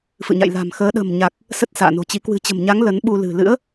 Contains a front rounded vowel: no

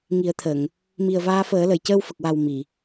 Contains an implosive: no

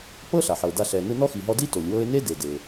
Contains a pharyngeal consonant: yes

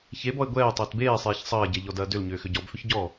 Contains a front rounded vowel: yes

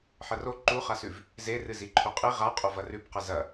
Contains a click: yes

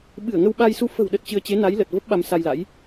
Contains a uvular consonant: no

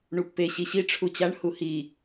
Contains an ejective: no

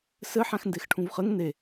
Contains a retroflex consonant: yes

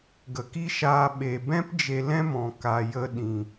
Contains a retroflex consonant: no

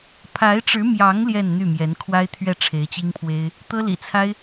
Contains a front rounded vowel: yes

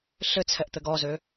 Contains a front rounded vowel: yes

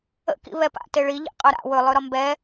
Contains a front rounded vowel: no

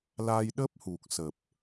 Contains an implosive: yes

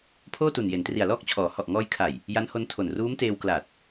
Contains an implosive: no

